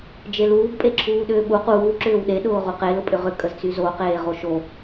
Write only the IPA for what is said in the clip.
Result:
d͡ʒ e l uː ɡ pʼ e ǁʰ uː ɗ ʏː ɓ u q uː ǁ ʏː w ɗ e ɗ ʊː ʁ u q e l ʊ pʼ ʏ ʁ ʏ kʼ ə z t͡s y z o q eː ʁ o ʃ o

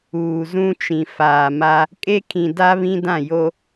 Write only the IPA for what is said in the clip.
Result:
uː˨ z ũ˦ t͡ʃ ĩ˨ f aː˨ m a˦ | kʼ e˦ kʰ ĩ˨ d a˦ β ĩ˦ d ã˦˨ j o˦

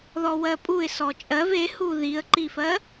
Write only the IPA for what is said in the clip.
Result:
ð ɔ w ɜ pʼ u ɪ̯ s ɔ t͡ʃʼ ɜ v e h u ð i ə̯ ǃ i f ɜ

